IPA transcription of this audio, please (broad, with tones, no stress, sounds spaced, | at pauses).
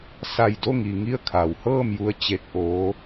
s a˧˩ j d o˥˨ ŋ i˩ ŋ i˥˨ ə̯ kʰ a˩˧ w h ɤː˥˨ m j u˧ ə̯ t͡ɕ e˧ k̚ ʔ oː˧˥